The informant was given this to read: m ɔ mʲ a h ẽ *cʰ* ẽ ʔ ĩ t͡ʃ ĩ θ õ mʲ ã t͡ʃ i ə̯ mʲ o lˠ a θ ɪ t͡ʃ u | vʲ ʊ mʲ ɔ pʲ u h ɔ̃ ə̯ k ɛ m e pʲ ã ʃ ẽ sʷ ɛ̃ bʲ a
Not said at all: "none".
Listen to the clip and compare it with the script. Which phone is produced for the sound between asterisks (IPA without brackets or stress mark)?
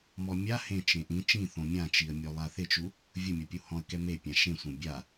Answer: t͡ʃ